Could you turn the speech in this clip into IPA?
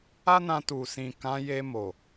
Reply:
a˦ n ã˧ t u˨ s ĩ˨ k ã˨˦ j e˧ m o˨

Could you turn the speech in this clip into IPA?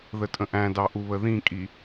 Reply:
ð ə tʼ ə̃ ʔ æ̃ d ɑ ʔ u β ə ð ĩ kʼ i

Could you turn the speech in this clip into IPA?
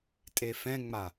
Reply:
tʼ e f ɛ̃ ŋ͡m a

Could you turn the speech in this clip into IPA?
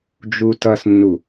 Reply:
d͡ʒ u t ʌ s nː u

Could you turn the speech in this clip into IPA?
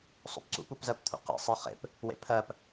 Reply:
sˤ o̰ p ǀ ṵ p u p z ɜ p t̪ʰ ṵ q ḭ sˤ ɜ χ ḛ p | w ḛ pʰ ɜ p

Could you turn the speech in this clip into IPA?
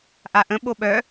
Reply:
ʔ a ʔ ə̃ ɓ o ɓ œ

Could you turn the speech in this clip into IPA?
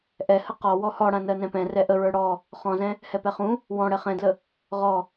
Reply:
ʔ ɛ h ə q ɔ w ɔ h ɔ ɽ ã n ɜ n ɛ̃ p ɛ̃ r ɛ ʔ ə ɹ ə˞ ɽ ɔ | χ ɔ̃ z ɛ̃ | h ɛ p ɛ χ ũ | w ɔ̃ ɽ ɛ χ ɛ̃ d l ə | ʁ ɔ

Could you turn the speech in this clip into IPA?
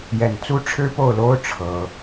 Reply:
j ɛ˥˩ n t͡s u˥ ʈ͡ʂʰ ɻ̩˥ p o˥˩ ʊ̯ l o˥ ʊ̯ ʈ͡ʂʰ ɤ˥

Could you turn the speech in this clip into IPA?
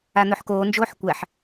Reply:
a n̪ ɵ ħ k oː n d͡ʒ oː ħ kʷ æ ħ

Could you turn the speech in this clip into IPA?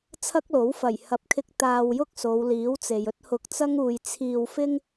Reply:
t͡sʰ ɐ˥ k̚ l o˨˥ w f ɐ˨˩ j h ɐ˨˥ p̚ kʰ ɪ˧ k̚ t̪ aː˧ w j ʊ˥ k̚ s o˨˧ w l iː˨˥ w t͡s e˨ j ɵ˥ t̚ h ʊ˧ k̚ t͡s ɐ˥ ŋ uː˧ j t͡sʰ iː˧ w f ɪ˥ ŋ

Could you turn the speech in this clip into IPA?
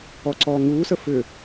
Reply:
ɔ ǀ ɔː ŋ uː s ə f ʏ

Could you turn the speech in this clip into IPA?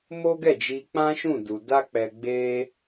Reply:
m o˦ ɡ ɛ˦˨ d͡ʒ i˧ k͡p ã˦ ʃ ũ˦˨ d u˨ d a˧ k͡p ɛ˨ ɡ͡b e˧

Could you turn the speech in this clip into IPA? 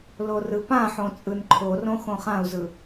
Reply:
l o r ɯ p ã ħ õ t͡sʼ ɯ n ǃʰ o r õ x õ χ ã u̯ z ɯ

